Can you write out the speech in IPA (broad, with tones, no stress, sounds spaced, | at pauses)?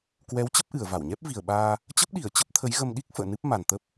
k w ɛ˨˦ w t͡ɕ ə˦˥ p̚ ʔ ɨ˧˩ ə̯ v a˧˩ w ɲ ɛ˦˥ p̚ v i˨˩ ə̯ ɓ aː˧ | t͡ɕ ə˦˥ p̚ ɗ i˧˩ ə̯ t͡ɕ ə˦˥ p̚ t̪ʰ ə˨˦ j ɣ ə˧ m ɗ i˦˥ k̚ f ə̰ː˧˨ n ɨ˦˥ p̚ m a˨˩ n t̪ ə˦˥ p̚